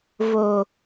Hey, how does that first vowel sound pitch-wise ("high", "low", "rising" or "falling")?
low